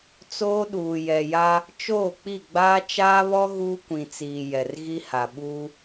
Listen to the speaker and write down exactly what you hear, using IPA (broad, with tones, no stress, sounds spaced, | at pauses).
t͡s oː˦ ɗ uː˨ j ɛ˨ j a˦ | t͡ʃ oː˦˨ k͡p i˦˨ ɡ͡b aː˦ t͡ʃ aː˦ β ɔ˦ ɣ uː˦ kʷ ĩ˨ t͡s iː˨ j ɛ˨ r ɣ i˦ h a˨ ɓ uː˦